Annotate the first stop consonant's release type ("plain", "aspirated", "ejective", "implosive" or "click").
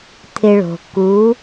aspirated